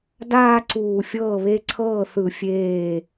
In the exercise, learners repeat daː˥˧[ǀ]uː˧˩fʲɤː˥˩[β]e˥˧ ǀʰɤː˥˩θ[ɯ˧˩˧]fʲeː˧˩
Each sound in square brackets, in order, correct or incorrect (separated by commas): correct, correct, correct